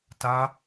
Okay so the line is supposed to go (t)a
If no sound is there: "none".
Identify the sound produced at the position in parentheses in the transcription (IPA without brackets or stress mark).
t